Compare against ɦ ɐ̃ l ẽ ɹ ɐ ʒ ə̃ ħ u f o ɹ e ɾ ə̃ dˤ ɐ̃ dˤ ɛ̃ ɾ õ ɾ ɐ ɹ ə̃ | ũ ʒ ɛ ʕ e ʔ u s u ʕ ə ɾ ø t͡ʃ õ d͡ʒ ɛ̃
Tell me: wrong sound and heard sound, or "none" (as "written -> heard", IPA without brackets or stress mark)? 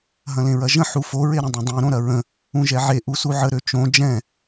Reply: none